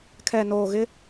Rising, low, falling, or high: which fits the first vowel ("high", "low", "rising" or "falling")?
low